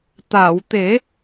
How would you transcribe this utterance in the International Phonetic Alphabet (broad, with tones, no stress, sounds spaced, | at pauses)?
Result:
t̪ a˨˩˨ w t̪ e˨˩˦